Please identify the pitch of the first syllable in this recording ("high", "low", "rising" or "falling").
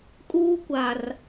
high